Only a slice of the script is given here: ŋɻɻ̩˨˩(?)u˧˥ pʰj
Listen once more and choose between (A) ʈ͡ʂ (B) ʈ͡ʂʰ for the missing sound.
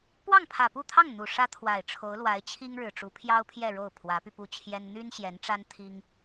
A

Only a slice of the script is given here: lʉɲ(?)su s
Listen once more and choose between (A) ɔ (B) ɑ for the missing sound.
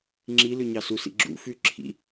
B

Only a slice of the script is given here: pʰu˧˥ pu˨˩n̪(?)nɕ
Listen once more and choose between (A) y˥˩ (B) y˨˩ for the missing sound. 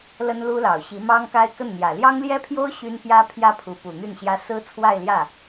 A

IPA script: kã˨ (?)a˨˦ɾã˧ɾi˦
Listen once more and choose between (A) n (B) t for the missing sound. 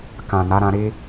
A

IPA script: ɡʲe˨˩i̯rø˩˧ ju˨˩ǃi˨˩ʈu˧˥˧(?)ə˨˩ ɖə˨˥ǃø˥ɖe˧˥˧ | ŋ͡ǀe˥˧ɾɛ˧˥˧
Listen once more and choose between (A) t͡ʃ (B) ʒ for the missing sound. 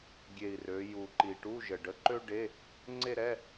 B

